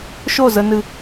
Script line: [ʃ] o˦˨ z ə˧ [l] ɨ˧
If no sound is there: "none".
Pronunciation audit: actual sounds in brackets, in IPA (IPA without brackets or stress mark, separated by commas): ʃ, n